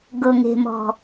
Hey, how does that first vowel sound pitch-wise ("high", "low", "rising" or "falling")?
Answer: low